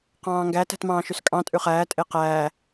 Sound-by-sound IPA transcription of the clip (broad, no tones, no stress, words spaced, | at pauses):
qɑ̃ːŋɡæ tæ̤tmɑ̃ːʃyskʼɑ̃ tʼʉχæː tʼeqæː